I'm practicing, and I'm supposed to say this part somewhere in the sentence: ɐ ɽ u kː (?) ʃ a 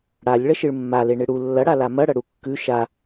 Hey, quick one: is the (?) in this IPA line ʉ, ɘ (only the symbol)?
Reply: ʉ